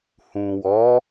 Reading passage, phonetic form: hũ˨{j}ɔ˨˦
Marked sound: incorrect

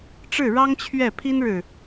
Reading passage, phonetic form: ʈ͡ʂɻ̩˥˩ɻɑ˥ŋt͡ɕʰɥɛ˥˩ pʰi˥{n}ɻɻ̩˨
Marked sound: correct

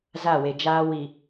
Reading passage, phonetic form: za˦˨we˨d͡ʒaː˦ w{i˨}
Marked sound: correct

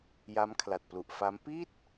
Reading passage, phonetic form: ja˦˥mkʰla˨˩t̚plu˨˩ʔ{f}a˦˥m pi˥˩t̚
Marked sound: correct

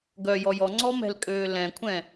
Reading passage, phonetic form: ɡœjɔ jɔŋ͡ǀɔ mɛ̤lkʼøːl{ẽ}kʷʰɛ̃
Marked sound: incorrect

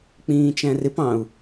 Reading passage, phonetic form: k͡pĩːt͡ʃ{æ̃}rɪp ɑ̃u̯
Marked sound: correct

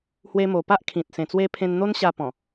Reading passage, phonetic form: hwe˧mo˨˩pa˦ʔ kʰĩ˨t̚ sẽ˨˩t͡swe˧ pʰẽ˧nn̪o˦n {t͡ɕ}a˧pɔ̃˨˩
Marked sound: incorrect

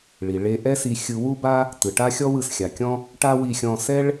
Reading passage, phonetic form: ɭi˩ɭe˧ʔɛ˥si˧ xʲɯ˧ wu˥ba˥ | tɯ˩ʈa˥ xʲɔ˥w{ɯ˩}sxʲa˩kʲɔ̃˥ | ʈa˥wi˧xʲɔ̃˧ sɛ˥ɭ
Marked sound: correct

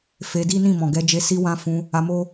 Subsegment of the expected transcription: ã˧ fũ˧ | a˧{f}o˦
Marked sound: incorrect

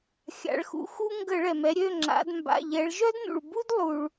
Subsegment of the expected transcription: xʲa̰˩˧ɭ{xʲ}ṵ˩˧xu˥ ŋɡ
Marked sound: incorrect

